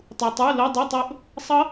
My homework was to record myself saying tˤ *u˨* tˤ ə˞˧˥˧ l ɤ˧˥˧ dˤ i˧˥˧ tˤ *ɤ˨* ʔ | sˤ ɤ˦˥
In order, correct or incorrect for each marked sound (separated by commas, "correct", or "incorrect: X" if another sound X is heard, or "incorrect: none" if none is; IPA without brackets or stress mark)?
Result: correct, incorrect: ɤ˦˥